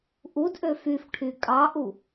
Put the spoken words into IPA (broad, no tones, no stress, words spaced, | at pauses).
ʔudʔø fyfʈʰy kʼɑʔu